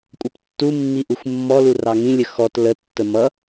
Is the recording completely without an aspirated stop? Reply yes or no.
yes